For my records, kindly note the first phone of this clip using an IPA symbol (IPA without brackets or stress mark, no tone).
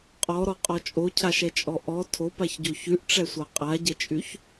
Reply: qʼ